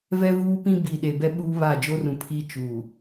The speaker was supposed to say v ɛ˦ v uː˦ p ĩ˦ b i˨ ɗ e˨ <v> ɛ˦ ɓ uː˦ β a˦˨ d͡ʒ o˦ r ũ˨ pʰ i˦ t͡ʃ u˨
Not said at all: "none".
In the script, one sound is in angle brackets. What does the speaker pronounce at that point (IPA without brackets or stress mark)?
b